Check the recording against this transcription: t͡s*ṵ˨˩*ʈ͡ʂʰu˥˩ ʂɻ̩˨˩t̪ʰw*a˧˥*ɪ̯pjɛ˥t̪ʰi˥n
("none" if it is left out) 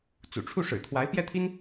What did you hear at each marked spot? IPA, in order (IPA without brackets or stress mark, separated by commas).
ṵ˨˩, a˧˥